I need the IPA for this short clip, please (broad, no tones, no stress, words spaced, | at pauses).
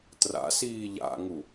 tra̰siː ʎa̰ŋu